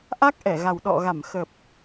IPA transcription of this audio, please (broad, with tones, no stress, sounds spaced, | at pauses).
ʔ a˦˥ k̚ ʔ ɛ˧˩ ɣ a˨˩ w ɗ ɔ̰˧˨ ɣ a˧˩ m x ə˨˩ p̚